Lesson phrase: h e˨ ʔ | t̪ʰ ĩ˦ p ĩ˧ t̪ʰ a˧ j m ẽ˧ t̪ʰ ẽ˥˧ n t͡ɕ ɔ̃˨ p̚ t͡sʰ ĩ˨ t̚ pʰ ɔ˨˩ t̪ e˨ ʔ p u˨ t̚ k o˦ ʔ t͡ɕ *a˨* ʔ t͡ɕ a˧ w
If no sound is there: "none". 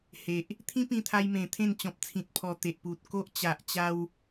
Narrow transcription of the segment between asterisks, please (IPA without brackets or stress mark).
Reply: a˨